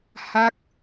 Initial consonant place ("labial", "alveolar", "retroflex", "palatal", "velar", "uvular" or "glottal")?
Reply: glottal